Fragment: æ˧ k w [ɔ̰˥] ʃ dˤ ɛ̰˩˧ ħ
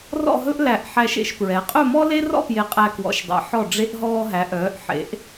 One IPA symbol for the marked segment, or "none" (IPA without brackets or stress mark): ɔ̰˩˧